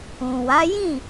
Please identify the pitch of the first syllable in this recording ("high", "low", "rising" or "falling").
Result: low